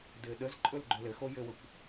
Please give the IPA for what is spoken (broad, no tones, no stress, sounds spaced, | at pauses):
d ɘː ɗ ə z ǃʼ ɵ l ɡ͡ǃ ɵ l ɘ x o j ɘ w ə kʷ